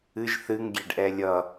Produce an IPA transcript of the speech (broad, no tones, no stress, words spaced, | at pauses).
ɨʒ θɨŋɡʲeɖʔɛ lʲʌ